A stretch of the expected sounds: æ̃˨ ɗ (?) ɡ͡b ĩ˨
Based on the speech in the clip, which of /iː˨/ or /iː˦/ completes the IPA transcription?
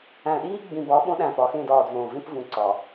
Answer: iː˦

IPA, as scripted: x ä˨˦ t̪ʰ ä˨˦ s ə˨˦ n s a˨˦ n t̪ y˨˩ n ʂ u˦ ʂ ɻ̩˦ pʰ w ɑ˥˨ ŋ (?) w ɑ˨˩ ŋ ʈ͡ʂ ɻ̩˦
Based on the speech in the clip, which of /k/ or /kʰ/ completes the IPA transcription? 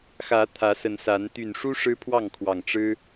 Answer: kʰ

